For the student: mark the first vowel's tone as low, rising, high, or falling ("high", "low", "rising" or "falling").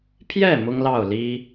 falling